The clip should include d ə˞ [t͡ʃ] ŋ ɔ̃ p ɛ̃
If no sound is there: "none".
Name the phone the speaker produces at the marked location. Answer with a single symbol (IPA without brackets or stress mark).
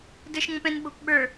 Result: ʃ